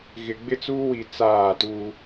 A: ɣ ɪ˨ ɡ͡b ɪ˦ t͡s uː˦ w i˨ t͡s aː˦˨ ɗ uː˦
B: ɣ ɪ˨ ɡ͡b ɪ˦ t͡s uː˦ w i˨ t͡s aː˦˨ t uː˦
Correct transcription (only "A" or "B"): B